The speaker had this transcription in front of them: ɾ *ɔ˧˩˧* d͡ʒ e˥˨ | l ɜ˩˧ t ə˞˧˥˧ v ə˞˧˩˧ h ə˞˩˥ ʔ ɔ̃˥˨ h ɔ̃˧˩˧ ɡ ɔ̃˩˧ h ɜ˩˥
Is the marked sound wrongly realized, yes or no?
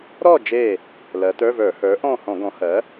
yes